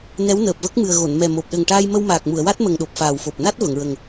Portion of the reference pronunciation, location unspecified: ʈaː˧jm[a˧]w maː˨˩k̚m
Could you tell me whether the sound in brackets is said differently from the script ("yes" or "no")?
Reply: yes